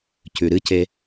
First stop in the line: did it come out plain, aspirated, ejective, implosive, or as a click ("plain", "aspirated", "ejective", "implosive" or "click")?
plain